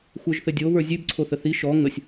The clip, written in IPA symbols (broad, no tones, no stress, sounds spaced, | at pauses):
xʷ ə˞ ʒ θ ɘ dʲ o β ə˞ zʲ ʉ b ǀʰ o θ ə θ i ʃ ɔ ŋ ə sʲ